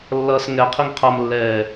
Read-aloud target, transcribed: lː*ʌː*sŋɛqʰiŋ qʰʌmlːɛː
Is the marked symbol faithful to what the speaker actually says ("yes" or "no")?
yes